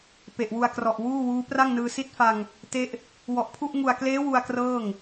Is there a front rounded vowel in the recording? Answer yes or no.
no